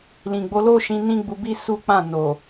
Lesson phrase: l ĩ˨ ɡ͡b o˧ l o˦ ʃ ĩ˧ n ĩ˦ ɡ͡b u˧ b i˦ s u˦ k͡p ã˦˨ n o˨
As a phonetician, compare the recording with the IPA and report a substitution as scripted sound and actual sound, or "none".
none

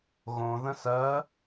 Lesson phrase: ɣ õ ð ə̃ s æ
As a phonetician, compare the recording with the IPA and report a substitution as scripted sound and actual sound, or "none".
æ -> ɜ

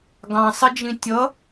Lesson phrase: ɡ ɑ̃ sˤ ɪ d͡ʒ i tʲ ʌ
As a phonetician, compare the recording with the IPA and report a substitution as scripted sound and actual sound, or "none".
i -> ĩ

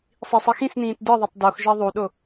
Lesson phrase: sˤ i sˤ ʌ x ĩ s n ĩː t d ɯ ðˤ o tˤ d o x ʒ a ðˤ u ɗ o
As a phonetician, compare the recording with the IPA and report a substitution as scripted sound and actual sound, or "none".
none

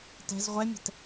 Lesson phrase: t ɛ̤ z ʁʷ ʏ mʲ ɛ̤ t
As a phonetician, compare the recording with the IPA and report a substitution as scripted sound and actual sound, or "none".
ʏ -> ɛ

